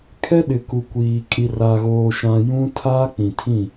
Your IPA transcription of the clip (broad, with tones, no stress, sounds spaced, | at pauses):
kʰ ɛ˦ ɗ ɪ˨ k u˨ kʷ iː˨ kʼ i˨ r a˨ ɣ oː˨ ʃ ã˨ j ũ˦ tʰ aː˦ k͡p ĩ˨ tʰ ĩ˦˨